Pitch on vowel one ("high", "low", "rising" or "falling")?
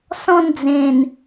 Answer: falling